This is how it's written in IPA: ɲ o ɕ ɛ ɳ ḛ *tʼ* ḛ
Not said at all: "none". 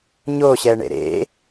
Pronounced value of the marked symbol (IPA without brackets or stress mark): ɾ